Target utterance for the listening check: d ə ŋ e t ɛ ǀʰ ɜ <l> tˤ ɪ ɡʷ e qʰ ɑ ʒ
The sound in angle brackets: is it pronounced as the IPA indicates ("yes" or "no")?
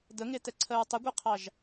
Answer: no